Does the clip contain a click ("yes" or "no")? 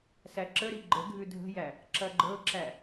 yes